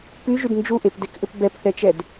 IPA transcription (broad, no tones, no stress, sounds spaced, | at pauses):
p y ʒ y d n d͡ʒ u ʔ e p d e k ʔ ʏ p b ɛ p θ ɛ t͡ʃ ɛ d